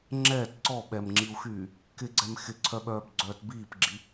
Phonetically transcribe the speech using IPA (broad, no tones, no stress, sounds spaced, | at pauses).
ŋ͡ǁ ɛː t ǀ ɔ ɓ ɛ m ŋ͡ǁ i u̯ x yː | k ɪ ɡ͡ǀ ɛ m x ɪ ǀʰ œ ɓ œː b ɡ͡ǀ œː t b iː p ɡ͡ǁ i